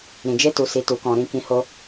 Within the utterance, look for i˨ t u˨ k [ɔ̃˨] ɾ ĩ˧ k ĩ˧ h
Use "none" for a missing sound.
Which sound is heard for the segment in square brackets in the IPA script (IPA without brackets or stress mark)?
ɔ̃˨